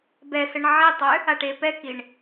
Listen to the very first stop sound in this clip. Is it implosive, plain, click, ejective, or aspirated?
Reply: plain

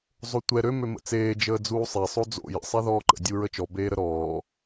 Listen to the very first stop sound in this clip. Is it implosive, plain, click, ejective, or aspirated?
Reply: plain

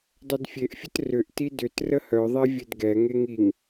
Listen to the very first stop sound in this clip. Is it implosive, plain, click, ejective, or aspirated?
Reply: plain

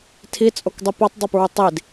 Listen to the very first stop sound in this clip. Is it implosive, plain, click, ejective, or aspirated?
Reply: aspirated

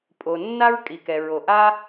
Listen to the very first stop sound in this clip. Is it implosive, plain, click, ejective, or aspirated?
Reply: ejective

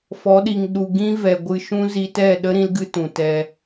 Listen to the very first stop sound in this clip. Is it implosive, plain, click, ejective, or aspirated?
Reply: implosive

